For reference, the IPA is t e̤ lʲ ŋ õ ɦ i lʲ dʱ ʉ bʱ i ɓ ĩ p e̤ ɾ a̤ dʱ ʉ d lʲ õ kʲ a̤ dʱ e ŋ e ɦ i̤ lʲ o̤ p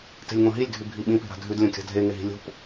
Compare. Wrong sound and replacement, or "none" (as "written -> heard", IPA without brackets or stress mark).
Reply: none